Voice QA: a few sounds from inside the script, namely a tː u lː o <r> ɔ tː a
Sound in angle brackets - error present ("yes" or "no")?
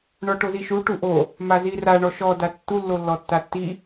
yes